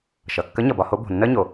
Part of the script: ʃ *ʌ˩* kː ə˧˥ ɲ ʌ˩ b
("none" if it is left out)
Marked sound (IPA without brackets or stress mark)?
ʌ˩